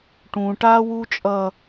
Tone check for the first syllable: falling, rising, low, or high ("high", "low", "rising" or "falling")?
high